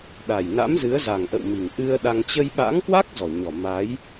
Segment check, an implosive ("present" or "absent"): present